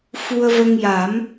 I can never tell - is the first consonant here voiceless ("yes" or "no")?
yes